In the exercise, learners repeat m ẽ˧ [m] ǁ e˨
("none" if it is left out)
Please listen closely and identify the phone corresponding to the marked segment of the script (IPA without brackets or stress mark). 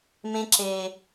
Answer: none